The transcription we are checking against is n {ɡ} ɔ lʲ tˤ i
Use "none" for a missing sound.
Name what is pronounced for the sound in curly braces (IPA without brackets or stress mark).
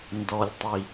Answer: d